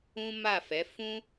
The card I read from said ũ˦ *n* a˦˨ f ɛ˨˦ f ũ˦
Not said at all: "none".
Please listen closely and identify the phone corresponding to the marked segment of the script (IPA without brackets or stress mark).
m